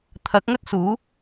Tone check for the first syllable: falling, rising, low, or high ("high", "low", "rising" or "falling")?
rising